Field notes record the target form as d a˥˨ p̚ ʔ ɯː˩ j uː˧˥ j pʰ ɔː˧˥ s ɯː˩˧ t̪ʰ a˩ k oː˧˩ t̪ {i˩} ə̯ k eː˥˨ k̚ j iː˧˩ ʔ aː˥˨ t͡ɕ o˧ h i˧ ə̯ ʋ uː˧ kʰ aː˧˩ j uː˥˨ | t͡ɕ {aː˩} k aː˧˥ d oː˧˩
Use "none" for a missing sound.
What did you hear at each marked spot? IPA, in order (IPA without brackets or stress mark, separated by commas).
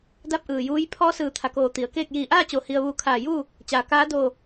i˩˧, aː˩